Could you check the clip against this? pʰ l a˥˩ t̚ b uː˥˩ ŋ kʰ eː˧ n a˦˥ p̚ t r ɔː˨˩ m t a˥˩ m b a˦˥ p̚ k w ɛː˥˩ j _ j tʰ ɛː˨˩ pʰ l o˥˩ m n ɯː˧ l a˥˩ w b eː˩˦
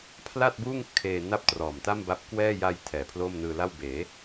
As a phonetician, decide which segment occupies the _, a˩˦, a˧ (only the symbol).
a˧